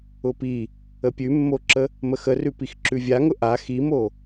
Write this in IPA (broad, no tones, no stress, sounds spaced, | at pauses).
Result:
ʊ p i | ə pʲ ʉ mː o ǁ ə | m ə x ə r ʉ p i x ǁ ʉ vʲ a ŋ ʊ ʔ a x i m o